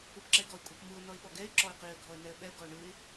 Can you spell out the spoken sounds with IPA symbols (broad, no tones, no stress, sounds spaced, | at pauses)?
ɯ p ǁ ɛ ɪ̯ ɡ ɔ ɪ̯ kʷʼ ɯ p m ɯ ʊ̯ n ɔ ɪ̯ ɓ ɔ ɡ ɛ ɪ̯ ǁ ɔ ɪ̯ q i ə̯ ɡʱ ɔ ə̯ n ɛ ə̯ ɓ ɛ ʊ̯ ɡ ɔ ʊ̯ ɳ ɯ ɪ̯